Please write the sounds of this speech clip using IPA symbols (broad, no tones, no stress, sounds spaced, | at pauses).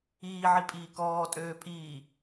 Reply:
iː ʕ i pʼ iː k ɔː tʼ øː pʼ iː